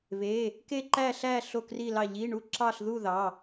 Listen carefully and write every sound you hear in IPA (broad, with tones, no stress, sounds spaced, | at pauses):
β e˧˥˧ | k e˥˧ ǃ æ˥˧ ɬ æ˥˧ ɬ o˥˧ k r i˥˧ l ɑ˥˧ ʎ i˧˥˧ ɳ u˥˧ ǁ ɑ˥˧ ɬ ð u˥˧ ð ɑ˧˥˧